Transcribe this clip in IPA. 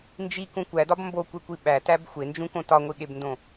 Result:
n d͡ʒ i k ũ kʷ æ d ɒ b m b o kʷ e kʷ i ɓ æ t æ b xʷ e n d͡ʒ ũ k õ t ɒ ŋʷ i ɠ e b n d õ

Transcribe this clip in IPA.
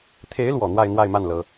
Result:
t̪ʰ e˧˥ ɪ̯ l w ɔ˨˩ n̪ w a˥˧ ɪ̯ n̪ w a˥˧ ɪ̯ m a˥˩ n l ɤ˥

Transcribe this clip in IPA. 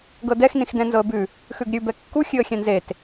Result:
ɡ ɤ d ɛ x n ĩ x d ɛ̃ n z ɤ ə̯ b ʉ | x ʉ ɡ ɾʲ ʉ b ɛ kː u xʲ ʉ ə̯ xʲ ɛ̃ n z e t

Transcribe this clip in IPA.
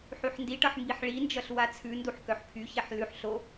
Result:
ħ y ħ n d i ʈ ʌ ħ m b i ħ ɭ i n d͡ʒ ʌ ɬ w a t͡sʰ ʉ n d u ħ k œ ħ pʰ y ç ɛ ħ l ʉ ħ ɬ o

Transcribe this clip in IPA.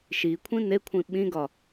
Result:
ʃ i kʷʰ ĩ n e kʷʰ ĩ ɓ ĩ ɡ ɒ

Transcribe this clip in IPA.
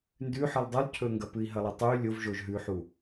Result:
n d ʉ ħ ɨ lˠ dˤ ʉ lˠ cʰ ɵ ŋ ɡ ɐ p ɨ i̯ ɦ ɐ lˠ ɐ tˤ u y̯ lʲ o v ʒ o ʒ ɦ ʉ ħ u

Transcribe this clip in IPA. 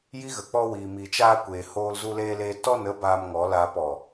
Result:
j i˦ ɣ ə˨ k͡p ɔ˧ w iː˨ m i˨ t͡ʃ aː˧ kʷ eː˨ h oː˧ l z u˧ l eː˧ l eː˧ t ɔ˦˨ n ə˧ b aː˧ m ŋ ɔ˨˦ l aː˧ p ɔ˨

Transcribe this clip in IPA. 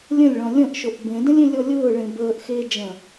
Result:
lʲ ə̃ lʲ ɭ ɔ̃ lʲ ə̃ ʔ ʃ o ʔ b ẽ d ə̃ lʲ ẽ lʲ ɔ lʲ ʊː ɭ ẽ b əː ʔ x eː d͡ʒ ə̃

